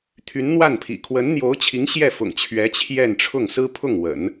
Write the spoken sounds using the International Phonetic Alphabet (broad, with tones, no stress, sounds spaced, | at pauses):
t̪ʰ y˧˥ n n̪ w a˥˩ n pʰ ḭ˨˩ kʰ w ə˧˥ n n̪ j o˧˥ ʊ̯ t͡ɕʰ i˧˥ ŋ ɕ j ɛ˥˩ f ʊ̰˨˩ ŋ t͡ɕʰ ɥ ɛ˧˥ t͡ɕʰ j ɛ˥˧ n ʈ͡ʂʰ ʊ˥˩ ŋ s ɹ̩˥ pʰ ʊ˥˩ ŋ w ə̰˨˩˦ n